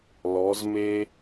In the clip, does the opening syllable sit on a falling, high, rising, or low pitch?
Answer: rising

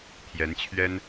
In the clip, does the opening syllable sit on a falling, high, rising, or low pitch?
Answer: rising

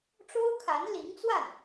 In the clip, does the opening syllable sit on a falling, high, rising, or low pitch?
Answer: high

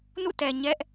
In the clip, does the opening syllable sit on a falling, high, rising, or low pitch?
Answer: falling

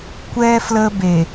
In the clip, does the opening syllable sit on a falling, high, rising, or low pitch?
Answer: high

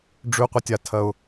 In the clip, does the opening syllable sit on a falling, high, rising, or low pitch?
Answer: low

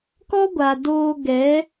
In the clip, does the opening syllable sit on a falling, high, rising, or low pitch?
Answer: high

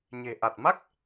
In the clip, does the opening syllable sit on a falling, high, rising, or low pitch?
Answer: low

